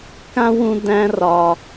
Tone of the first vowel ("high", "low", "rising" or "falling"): high